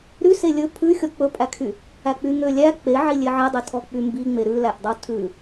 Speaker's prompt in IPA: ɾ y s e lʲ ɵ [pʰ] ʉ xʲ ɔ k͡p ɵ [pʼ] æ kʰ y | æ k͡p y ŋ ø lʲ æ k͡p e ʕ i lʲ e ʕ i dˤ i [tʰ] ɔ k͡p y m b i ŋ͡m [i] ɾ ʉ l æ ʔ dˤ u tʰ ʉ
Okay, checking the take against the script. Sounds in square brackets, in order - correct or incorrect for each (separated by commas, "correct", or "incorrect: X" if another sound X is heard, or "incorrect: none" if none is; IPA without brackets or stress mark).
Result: correct, correct, correct, incorrect: e